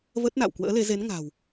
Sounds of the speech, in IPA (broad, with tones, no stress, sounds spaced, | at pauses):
v ə˦˥ t̚ n a̰˧˨ w k w ə̰ː˧˥ l e˨˦ z e˨˦ n ŋ a̤˨˩ w